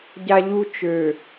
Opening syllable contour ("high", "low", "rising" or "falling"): high